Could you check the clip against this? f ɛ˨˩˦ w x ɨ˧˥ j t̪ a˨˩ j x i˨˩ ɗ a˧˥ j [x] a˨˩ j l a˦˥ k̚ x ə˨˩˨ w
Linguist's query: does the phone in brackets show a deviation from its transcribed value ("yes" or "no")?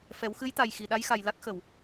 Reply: no